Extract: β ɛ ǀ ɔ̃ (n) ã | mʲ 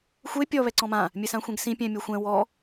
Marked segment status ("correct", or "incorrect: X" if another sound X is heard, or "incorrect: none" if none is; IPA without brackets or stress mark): incorrect: m